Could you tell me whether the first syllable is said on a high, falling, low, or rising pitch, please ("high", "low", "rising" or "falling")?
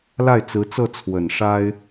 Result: falling